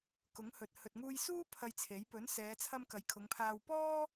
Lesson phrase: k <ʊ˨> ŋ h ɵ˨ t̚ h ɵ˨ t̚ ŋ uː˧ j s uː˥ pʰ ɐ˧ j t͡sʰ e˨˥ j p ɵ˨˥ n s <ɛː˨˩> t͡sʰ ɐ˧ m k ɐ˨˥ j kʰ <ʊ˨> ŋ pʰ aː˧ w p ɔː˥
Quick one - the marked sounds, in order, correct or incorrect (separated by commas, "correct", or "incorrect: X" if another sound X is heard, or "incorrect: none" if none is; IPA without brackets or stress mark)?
incorrect: ʊ˨˥, incorrect: ɛː˨˧, incorrect: ʊ˨˧